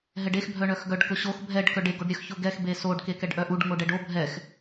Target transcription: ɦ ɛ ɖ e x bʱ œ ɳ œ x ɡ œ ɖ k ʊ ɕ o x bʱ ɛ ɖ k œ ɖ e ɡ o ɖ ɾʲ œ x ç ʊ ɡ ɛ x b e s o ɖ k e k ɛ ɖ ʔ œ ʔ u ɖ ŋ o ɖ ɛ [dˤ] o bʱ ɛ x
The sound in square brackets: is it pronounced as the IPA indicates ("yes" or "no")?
no